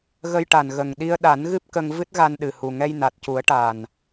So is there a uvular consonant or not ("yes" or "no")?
no